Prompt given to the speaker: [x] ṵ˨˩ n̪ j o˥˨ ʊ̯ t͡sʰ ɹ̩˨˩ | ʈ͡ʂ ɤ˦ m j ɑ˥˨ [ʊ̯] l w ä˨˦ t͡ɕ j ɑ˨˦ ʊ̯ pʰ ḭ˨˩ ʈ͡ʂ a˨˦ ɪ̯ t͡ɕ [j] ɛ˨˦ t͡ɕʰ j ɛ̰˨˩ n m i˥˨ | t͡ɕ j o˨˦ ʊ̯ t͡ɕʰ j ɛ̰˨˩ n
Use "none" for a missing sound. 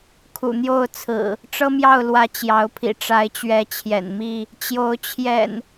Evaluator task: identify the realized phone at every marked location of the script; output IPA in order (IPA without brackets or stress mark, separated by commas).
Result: kʰ, ʊ̯, ɥ